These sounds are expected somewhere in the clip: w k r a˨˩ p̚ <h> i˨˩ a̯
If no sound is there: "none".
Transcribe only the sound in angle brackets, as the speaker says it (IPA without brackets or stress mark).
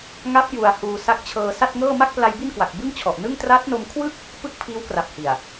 h